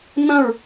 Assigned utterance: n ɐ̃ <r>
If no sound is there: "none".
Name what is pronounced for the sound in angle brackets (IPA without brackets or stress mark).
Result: ɹ